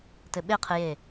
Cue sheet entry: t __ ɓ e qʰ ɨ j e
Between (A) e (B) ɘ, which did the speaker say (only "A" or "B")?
B